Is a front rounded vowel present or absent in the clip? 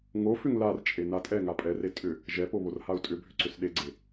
present